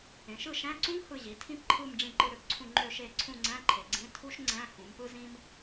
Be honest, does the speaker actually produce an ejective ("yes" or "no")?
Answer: no